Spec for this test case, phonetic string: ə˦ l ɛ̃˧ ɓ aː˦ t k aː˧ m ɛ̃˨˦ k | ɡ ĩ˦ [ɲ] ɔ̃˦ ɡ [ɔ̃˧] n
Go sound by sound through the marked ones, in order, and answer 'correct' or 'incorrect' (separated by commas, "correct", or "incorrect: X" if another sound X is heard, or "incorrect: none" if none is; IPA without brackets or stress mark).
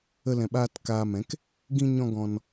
correct, correct